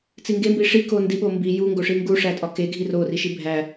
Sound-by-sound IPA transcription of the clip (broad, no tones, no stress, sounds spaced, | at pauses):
t͡s i ŋ ɡ e m b i ʂ i k o n d i ɓ o m b i j u ŋ ɡ o ʂ i ŋ ɡ u ʂ æ tʼ ɒ k e ɡʱ i r o r i ʃ i bʱ æ